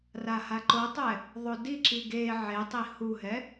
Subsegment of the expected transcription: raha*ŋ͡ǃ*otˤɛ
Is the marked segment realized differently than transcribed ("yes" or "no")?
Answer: yes